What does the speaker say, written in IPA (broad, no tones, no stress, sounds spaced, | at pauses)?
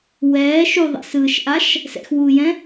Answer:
w ɛː ʃ u ðˤ ɛ̰ s ɯː ʃ ʔ a ʃ | s ɛ̰ x w uː j ɛ̃